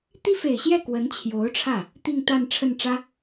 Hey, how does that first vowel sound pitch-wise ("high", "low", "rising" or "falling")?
high